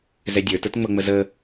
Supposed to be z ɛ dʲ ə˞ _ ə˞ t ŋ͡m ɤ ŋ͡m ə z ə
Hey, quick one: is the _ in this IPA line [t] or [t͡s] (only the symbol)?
t